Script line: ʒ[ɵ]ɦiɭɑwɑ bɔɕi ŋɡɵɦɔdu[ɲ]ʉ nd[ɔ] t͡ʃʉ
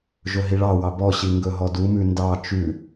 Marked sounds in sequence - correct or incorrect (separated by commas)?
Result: correct, incorrect, incorrect